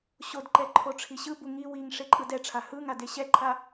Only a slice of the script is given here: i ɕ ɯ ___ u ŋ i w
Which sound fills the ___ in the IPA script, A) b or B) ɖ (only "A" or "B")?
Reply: A